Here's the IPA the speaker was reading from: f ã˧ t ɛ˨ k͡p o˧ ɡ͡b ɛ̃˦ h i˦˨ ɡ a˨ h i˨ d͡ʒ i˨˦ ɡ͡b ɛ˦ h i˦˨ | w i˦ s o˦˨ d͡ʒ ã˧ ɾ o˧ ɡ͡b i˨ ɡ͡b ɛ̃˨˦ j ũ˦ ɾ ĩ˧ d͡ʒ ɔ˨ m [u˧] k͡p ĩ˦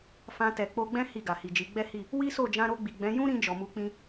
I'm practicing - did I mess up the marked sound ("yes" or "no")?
no